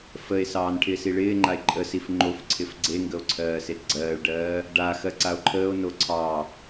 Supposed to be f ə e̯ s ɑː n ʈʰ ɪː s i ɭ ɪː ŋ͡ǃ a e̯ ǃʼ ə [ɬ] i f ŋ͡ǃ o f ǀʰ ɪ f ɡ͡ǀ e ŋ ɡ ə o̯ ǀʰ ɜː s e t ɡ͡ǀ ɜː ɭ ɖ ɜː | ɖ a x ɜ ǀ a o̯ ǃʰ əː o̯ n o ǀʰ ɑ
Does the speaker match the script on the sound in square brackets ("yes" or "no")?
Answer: no